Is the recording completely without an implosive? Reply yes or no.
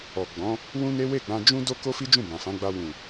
yes